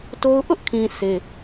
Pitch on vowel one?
high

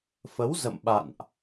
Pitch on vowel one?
rising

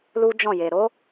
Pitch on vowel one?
high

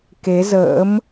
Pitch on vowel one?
rising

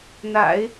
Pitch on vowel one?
low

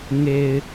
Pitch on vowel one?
low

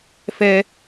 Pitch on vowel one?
high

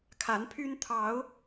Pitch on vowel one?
rising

